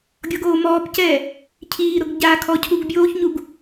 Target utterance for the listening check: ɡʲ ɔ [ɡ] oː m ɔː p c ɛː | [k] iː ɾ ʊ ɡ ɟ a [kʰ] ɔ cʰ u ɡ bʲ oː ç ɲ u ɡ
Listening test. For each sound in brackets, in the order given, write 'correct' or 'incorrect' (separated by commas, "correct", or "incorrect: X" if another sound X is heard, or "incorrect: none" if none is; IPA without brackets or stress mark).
correct, incorrect: cʰ, correct